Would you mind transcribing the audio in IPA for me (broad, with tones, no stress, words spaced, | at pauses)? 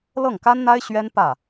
lɤ˥˩ŋka˥nn̪a˥ɪ̯ ɕɥɛ˥n pä˥˩